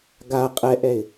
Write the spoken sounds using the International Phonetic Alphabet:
ɡa qʼɛʔɛɪ̯

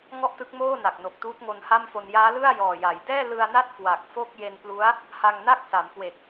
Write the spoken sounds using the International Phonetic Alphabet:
ŋɔ˥˩ʔtɯ˦˥k̚moː˥˩na˨˩k̚ no˨˩k̚tuː˦˥t̚ŋo˧n ha˥˩mfo˧n jaː˦˥lɯ˥˩a̯ jɔː˨˩ja˩˦j dɛː˥˩lɯ˧a̯na˥˩t̚ kwa˨˩k̚fo˥˩k̚ je˧nplu˦˥a̯ | ha˧ŋna˥˩k̚ sa˩˦mkwe˨˩k̚

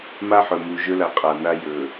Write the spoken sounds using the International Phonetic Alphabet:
ma˦ħɵ˨mu˨ ʒɵ˦la˨ qʼa˨na˦ jɵ˨

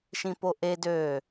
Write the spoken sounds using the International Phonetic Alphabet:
ʃĩpoʔe dø

